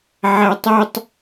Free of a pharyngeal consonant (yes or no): no